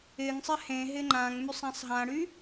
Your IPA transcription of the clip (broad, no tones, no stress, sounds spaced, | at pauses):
ɪ ŋ sˤ ɪ h ẽ ɦ ɪ ŋ͡ǃ ã ŋ m y sˤ ã sˤ ɦ ã ɽ y